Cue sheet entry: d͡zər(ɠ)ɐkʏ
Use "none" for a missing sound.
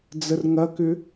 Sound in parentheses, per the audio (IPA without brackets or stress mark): ŋ